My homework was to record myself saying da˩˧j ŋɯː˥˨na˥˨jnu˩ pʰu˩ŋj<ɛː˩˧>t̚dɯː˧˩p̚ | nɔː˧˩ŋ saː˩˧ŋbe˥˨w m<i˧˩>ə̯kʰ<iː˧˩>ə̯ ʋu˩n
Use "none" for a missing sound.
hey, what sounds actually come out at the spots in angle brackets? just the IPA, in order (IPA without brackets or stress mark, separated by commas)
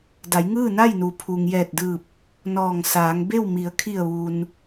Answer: ɛː˧˩, i˩˧, i˧˩